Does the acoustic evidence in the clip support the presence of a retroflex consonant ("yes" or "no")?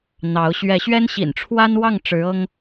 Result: yes